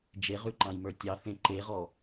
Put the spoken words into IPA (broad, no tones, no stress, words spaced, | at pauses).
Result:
d͡ʒeʁʉǃɑ̃jmə˞ tʲɑ θẽǃeʁɔ